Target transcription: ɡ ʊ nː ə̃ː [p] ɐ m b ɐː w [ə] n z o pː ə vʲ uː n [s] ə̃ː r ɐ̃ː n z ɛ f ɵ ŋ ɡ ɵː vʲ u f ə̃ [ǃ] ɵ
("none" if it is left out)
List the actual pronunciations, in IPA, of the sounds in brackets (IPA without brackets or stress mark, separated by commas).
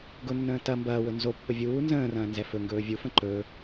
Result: t, ɵ, z, ǃ